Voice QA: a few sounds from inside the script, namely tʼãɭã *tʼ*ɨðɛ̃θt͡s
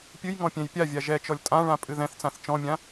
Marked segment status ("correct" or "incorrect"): incorrect